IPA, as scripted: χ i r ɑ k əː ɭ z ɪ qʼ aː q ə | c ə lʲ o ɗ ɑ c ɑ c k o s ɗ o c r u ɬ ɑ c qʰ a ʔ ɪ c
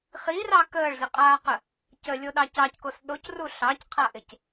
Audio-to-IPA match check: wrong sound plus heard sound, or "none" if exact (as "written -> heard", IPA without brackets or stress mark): none